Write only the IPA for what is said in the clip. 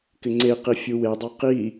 kɪŋ͡ǀeqi fʲuwedˤa qi

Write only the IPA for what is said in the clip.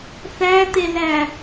θæt̪elæ

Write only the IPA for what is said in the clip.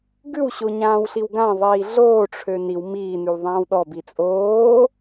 ɡʉwɕoɲãːwɬiw ɡãðˤiː ɮoːʈ͡ʂʰø niw miːnʉwðˤãːw ɗɔbi t͡sʼoː

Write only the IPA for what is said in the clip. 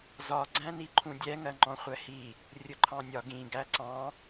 zɒɡ͡ǀæ̃ni ǃʰũdʲɛŋɜ ŋ͡ǃɔ̃χʷɛhi | rʲʊǃʰɑ̃nʲɒ ɡĩɡæ ǀɑ̃

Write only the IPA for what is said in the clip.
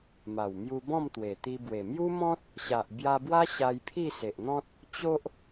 ma˨˩wmju˧bɔ̃˥˧mt̪we˨˩ t̪i˧bwe˨˩ mju˦mɔ̃˦t̚ | ɕa˨ʔbja˧bwa˦ ɕa˧jpʰi˥˧se˨ʔn̪ɔ̃˦t̚ | t͡ɕo˦ʔ

